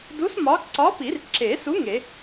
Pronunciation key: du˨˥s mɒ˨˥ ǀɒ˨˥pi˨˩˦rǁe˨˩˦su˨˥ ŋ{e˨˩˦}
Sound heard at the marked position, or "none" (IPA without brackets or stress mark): e˨˩˦